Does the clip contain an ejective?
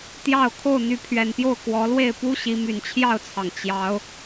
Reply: no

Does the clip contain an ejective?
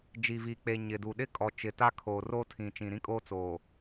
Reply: yes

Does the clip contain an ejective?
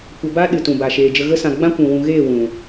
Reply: no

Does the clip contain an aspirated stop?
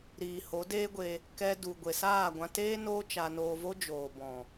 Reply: no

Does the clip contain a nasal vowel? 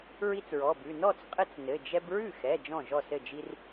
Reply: yes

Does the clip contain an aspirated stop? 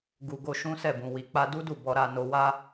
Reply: no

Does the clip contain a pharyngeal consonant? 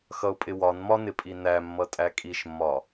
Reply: no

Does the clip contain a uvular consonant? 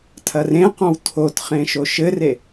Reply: yes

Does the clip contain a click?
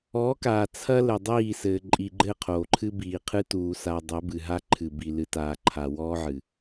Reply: yes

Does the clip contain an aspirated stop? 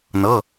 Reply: no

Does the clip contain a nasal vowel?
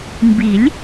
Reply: no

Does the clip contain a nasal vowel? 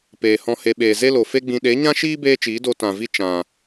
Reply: yes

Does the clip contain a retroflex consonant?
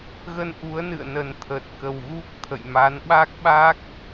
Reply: no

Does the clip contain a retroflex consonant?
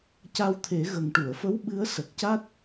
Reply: yes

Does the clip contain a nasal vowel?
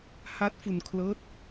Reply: no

